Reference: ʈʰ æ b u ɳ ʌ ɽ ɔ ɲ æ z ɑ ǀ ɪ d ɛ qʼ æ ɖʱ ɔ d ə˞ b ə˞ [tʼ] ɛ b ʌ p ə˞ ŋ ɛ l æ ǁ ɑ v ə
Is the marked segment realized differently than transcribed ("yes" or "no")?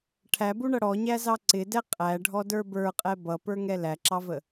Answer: yes